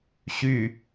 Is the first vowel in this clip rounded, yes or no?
yes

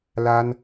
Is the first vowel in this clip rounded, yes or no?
no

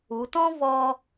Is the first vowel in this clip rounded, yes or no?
yes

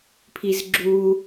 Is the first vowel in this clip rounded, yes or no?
no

